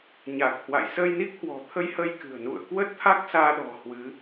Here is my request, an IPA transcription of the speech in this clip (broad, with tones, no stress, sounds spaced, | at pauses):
ɲ a˨˩ k̚ h w a̰˧˨ j s ə˧ j n i˦˥ k̚ h w ɔ̤˨˩ t̪ʰ ə˧ j h ə˧ j k ɨ̤˨˩ ə̯ n ṵ˧˨ ə̯ k w ə˦˥ t̚ t̪ʰ a˦˥ k̚ s aː˧ ɗ ɔ̤˨˩ h w ɨ˨˦